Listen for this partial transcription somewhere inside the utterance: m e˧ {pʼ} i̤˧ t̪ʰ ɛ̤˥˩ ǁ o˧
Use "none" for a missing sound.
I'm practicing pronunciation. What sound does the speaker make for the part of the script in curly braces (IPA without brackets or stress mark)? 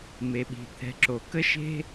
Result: ɓ